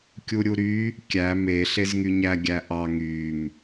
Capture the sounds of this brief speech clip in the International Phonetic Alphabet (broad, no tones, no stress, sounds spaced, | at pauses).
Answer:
kʲ u ɾʲ u ɾ y | kʲ æ m e ɬ e z ŋ y ɲ æ ɡʲ æ ʔ ɑ ŋ y m